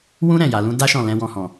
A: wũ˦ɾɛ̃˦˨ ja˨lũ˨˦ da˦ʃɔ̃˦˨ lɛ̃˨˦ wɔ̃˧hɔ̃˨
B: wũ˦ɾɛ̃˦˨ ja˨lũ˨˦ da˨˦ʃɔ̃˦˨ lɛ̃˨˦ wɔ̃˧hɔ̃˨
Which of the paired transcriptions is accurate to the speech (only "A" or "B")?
A